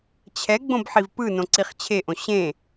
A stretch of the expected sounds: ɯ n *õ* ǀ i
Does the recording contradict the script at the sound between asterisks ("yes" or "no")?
no